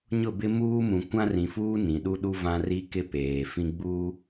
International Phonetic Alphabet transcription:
ɲʊ˦˨bɪ˦ muː˦mũ˨ kʷã˦rĩ˨fuː˦ nĩ˨ɗu˦ɗu˦vã˦ ri˦kɪ˦ peː˨fĩ˦ɡ͡bu˦

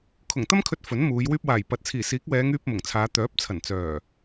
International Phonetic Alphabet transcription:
kʰʊ˨˩ŋt̪ɐ˥mkʰɵ˧t̚ fɵ˨˥nmuː˨˧j wyː˧p̚waː˨˩jpɐ˨t̚ t͡sʰiː˨˩siː˨˥k̚ wɛː˨˧ŋyː˧p̚ mʊ˨˩ŋt͡sʰaː˨˧ t̪œː˨˥p̚ t͡sʰɐ˨˩nt͡sœː˨˩

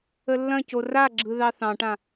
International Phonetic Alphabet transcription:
əlːɐ̃co raɡ͡ǁɯ ðɑθɑ̃ʈã

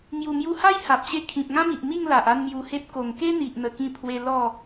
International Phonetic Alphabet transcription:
ŋju˨˩mju˧ha˦j ha˨p̚ɕe˥˧ kʰĩ˨p̚ŋã˦mi˨ʔmi˥˧ŋ la˨ʔa˥˧nmju˧he˦p̚ ko˨˩ŋke˦n̪i˨ʔn̪ə˨˩ kĩ˥˧pʰwe˦ lɔ˥˧

